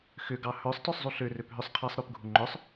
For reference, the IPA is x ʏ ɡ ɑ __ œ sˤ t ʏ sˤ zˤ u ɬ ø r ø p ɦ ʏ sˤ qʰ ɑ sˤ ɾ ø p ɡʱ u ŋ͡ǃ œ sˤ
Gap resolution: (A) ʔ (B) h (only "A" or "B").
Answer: B